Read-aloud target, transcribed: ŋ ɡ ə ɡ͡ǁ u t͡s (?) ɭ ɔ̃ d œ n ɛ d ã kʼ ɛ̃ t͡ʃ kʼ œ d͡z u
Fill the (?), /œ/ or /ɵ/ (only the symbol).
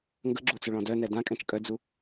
ɵ